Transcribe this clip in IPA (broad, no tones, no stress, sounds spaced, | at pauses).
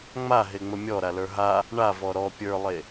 ŋ͡m a ɦ e ŋ͡m ə mʲ ɔ ɾ a l ə˞ ɦ a | ɳ a v ɔ ɾ ɔ pʲ ə˞ lˠ e